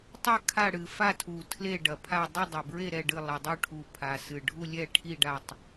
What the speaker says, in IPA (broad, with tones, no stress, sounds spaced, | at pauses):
tˤ ɘ˦˨ kʰ a˦˨ ɽ ɨ˨˩ f a˦˨ tʰ u˨˩ tʰ l e˦˨ ɖ ɐ˨˩ pʰ a˦˨ dˤ ɨ˦˨ dˤ ɘ˨˩ b ɹ e˦˨ ɾ ɛ˦˨ ɖ ɨ˦˨ lˠ ɐ˨˩ dˤ u˦˨ ʈʰ u˨˩ pʰ a˨˩ s ɨ˨˩ ɖʱ u˦˨ lʲ ɛ˦˨ ʈʰ i˦˨ ɖ a˦˨ tˤ